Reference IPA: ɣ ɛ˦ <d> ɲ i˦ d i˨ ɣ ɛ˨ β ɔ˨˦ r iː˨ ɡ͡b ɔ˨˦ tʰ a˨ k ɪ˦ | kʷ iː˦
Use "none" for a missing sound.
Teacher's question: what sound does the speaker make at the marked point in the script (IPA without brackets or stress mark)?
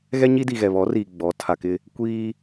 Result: none